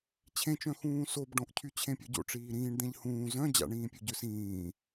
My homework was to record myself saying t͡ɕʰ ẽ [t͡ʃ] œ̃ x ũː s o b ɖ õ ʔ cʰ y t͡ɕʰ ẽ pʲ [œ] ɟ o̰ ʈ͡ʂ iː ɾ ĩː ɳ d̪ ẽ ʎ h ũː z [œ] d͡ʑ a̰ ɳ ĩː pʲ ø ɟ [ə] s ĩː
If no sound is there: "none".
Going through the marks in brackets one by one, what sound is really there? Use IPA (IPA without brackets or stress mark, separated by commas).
t͡ʃ, œ, œ̃, ø